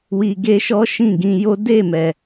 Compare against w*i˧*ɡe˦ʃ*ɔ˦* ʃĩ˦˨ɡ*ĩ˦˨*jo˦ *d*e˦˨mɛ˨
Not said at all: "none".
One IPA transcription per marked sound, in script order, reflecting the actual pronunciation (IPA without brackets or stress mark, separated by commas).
i˧, ɔ˦, ĩ˧, d